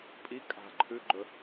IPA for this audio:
pʼ i kʼ a̤ ǃʰ ʉ ɡ͡ǃ ɵ

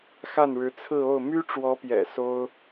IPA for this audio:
x a˥˩ n ɻ ɻ̩˧˥ t͡sʰ ɹ̩˥˧ o˥˩ ʊ̯ m y˥ ʈ͡ʂ w ɔ˧˥ p j ɛ̰˨˩ s o˥ ʊ̯

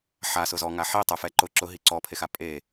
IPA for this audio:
ħ a s ʊ z ɔ ŋ a ħ i tˤ ʊ f ɛ ǃ ʊ ǁ ʊ ɦ i ǀ ɔ pʰ e x a pʼ e

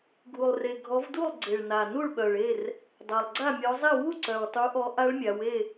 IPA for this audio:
ɡʱ u˨˩ lˠ r e˨˩ ɡʱ ɔ˨˦ v d u˥˨ lˠ ɡ͡ǀ e˨˩ ɭ n a˨˩ n u˥˨ ɭ ɓ œ˨˩ ɭ e˥˨ r | dˤ a˨˩ lˠ ɡ͡ǀ a˥˨ mʲ ɔ˨˦ zˤ i˥˨ w u˥˨ ǀ œ˨˩ w tˤ u˨˦ ʔ ɔ˨˦ ʔ a˦˥ ɭ mʲ a˨˦ w e˥˨

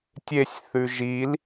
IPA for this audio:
tʲ e sʲ θ ʉ ʒ i l

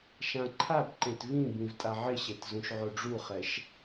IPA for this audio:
ʃ ã ǃʰ a b ǃ ẽ t v ĩ b ĩ v tʼ a ʕ ɪ ɕ e t z ũ ʃ ʕ o ɖ͡ʐ u χ ɛ ʃ

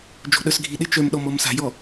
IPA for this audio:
d͡ʒ o̤ ɗ œ s ɡʱ i ɗ e t͡ʃ œ m ɗ ɔ m ɔ m s a̤ j ɔ

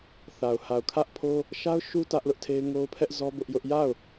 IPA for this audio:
θ a˨ ʊ̯ h a˨ ʊ̯ kʰ ä˦ ʔ pʰ o˦ | ʃ a˦ ʊ̯ ʃ u˦ t ä˦ ʔ l ʊ˦ ʔ tʰ e˦ ɪ̯ ŋ o˦ ʊ̯ pʰ ɛ˦ ʔ z ɔ˦ b ʊ˦ ʔ j ʊ˦ ʔ j a˦˨ ʊ̯

